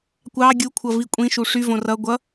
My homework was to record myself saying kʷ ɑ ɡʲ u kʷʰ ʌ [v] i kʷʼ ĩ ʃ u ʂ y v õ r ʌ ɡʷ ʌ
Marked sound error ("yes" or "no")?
no